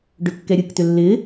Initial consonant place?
retroflex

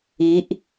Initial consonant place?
glottal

